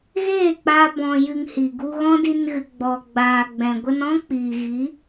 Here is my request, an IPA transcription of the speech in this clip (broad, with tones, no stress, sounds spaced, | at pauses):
ɣ eː˦˨ k͡p aː˧ b ɔ̃˧ j ɨ˧ ŋ h i˨ ɡ u˧ ɣ ɔ̃˦ d i˧ n ɣ ɨ˨ ɡ͡b ɔ˨ ɡ͡b aː˨ ɡ͡b ɛ̃˨ ɡʷ ə˧ n ɔ̃˦ k͡p iː˨ ɣ i˨˦